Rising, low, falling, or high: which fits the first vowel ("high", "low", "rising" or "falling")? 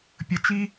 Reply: high